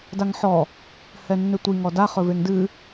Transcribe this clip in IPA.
daŋħɔ | hɛnːʏtʷi ŋɔda χɵveŋdɨ

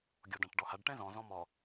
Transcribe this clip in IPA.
ɡʲɔdãʈɖɔhaɖ ʈɛ̃zɔ̃ zɔ̃mɔ

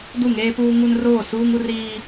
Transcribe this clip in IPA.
du˦˨ŋeː˦puː˦ ŋu˦nroː˦˨ suː˦ŋu˦riː˦

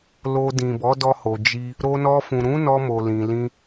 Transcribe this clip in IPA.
lo˧ dĩ˨bɔ˨˦dɔ˧ho˨ d͡ʒi˧ | ɾo˧nɔ˧fũ˨ ɾũ˨˦nɔ˧ mo˨lĩ˨lĩ˧

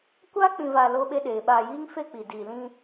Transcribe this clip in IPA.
kʷa˦k͡pĩ˨vaː˨ lo˦ɓe˦ɗeː˨ ɓaː˨jiː˦ŋfe˦˨ k͡pi˨diː˨lĩ˦

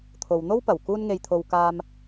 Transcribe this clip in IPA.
t̪ʰo˨wn̪o˥wpɐ˨˩w kuː˧nŋe˨jt̪ʰo˨w kaː˧m

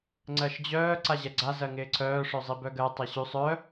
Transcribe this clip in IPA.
ŋ͡ǀɜʃd͡ʑœː ǀaʑɛɡ͡ǀa zɜŋɪːǀʰœː ʂœzˤibœɡɜ tˤɛɕʉsˤ œ

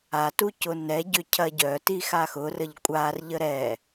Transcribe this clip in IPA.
atucʊ nɛɟʏ cʰɐɟœtixa xʊrəʎ kʷʼarʎə ɾɛ

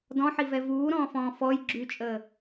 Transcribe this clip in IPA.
dɔ̃ħivɛ vuːɾɔ̃ːfɔ̃ː fɔj ɡ͡ǁyt͡ʃʼəː

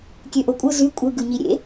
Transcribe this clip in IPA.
kʲøʔokʷʼɯ zy kʷʼɯ ɡɯɲiɾʲḛ

